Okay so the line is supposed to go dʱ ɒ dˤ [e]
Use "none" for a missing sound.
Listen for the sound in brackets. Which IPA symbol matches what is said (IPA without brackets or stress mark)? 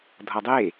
e